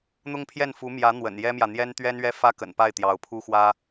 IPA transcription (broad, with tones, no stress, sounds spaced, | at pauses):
n̪ ʊ˥ ŋ pʰ j ɛ˥˩ n f u˧˥ m j ä˧˥ n̪ w ə̰˨˩ n j ɛ˥ m j ä˨ n̪ j ɛ˥ n t̪ ɥ ɛ˥ n ɥ ɛ˥ f ä˥ k ə̰˨˩ n p a˥˩ ɪ̯ t̪ j ɑ˧˥ ʊ̯ pʰ u˥ x w ä˥